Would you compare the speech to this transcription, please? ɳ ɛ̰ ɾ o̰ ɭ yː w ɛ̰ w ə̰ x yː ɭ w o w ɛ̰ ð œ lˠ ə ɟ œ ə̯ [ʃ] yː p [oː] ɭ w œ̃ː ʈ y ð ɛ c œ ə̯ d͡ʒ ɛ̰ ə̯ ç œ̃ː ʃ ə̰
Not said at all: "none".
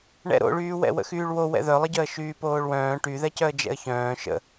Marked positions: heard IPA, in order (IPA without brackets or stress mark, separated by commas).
ʃ, oː